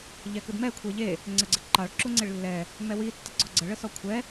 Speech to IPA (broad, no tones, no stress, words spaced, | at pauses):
ʎɛkɯdmɛ kʷʰeʎe | ŋ͡ǀəɡ͡ǀəǃɑɭ ǁuŋ͡ǀeɭlːɛ | mɛwi tːəɡ͡ǀɔɡ͡ǀə ɭəsɔkʷʰɛ